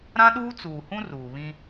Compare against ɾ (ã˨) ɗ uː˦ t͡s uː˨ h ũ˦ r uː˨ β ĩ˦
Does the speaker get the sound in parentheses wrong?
yes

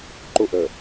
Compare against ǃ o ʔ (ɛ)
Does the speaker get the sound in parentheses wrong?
yes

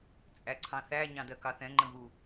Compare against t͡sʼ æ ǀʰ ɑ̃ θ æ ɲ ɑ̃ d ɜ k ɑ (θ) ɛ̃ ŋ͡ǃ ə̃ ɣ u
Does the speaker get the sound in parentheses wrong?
no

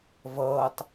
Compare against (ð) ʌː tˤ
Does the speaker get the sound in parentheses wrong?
yes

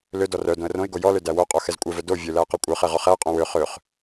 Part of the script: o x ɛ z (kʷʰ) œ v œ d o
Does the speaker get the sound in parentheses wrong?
yes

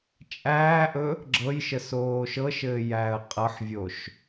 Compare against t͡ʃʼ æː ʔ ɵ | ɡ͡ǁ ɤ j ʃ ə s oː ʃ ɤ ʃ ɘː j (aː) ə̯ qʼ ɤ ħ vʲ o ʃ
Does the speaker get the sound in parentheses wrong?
yes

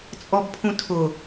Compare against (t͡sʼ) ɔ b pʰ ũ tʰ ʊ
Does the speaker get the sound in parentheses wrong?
no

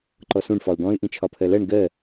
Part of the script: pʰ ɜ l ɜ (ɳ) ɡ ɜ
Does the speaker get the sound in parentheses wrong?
no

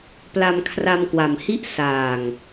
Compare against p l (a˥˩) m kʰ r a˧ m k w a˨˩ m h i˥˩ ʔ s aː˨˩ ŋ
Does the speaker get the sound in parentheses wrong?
yes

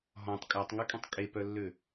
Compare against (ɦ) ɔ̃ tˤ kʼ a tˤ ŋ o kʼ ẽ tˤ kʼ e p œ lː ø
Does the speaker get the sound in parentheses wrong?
no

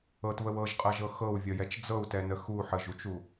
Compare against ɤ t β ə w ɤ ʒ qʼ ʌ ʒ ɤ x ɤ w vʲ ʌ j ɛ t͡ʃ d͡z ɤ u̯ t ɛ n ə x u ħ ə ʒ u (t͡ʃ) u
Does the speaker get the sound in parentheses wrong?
no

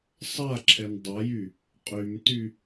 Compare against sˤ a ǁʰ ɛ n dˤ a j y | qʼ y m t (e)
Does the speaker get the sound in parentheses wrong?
yes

